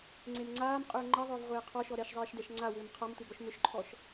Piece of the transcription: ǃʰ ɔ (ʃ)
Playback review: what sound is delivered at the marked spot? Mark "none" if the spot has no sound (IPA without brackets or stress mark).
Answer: ʃ